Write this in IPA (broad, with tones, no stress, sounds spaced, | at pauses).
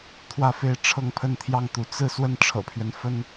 t̪ʰ w ä˥˧ f e˥˧ ɪ̯ ʈ͡ʂʰ ɤ˥˧ ŋ pʰ ə˥˧ n t̪ʰ j ɑ˥˩ ŋ t̪ u˧˥ t͡s ɹ̩˥˧ s w ə˥˩ n ʈ͡ʂʰ ɤ̰˨˩ pʰ ɥ ɛ˦ n f ə˥ n